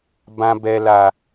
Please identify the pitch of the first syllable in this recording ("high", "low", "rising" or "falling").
low